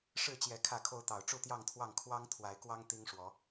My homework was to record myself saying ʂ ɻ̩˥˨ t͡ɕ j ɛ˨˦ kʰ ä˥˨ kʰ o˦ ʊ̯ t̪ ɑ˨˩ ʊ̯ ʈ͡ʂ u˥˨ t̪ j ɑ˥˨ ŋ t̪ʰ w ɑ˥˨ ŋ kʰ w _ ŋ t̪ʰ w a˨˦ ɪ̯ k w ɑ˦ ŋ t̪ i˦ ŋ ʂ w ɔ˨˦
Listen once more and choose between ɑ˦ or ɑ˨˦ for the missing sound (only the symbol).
ɑ˦